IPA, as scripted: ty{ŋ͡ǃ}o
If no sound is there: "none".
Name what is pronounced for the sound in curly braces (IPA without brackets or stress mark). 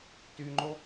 ŋ͡ǃ